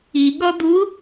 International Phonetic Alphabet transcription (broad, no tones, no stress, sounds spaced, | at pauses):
i ɠ ɔ d̪ u